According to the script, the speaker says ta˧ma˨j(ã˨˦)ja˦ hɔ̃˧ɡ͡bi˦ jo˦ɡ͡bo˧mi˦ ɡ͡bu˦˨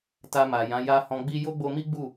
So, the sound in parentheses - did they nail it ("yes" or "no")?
yes